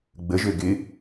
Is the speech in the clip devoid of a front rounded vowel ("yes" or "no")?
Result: no